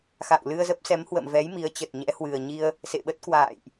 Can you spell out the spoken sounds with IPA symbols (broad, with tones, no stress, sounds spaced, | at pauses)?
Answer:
x a̰˧˨ w l ɨ˧ ə̯ z ə˦˥ p̚ s ɛ˨˦ m h w ə̰˧˨ m v ɛ˨˦ j m i˨˦ ə̯ t͡ɕ ə˨˩ t̚ ɲ ɛ̰˧˥ h w ɨ˨˩ ə̯ ɲ i˧ ə̯ | s ḛ˧˨ ɓ ə˦˥ t̚ k w a̰ː˧˨ j ʔ